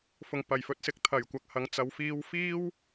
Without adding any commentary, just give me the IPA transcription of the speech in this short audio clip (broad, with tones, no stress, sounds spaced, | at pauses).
f ʊ˨˩ ŋ p ɐ˨˩ j f ɵ˧ t̚ s ɪ˧ k̚ t̪ʰ ɐ˨˩ j kʷ ɐ˧ k̚ h ɐ˨˧ ŋ t͡s ɐ˨˧ w f iː˧ w f iː˥ w